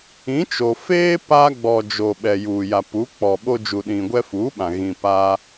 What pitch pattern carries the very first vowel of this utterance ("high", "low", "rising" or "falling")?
rising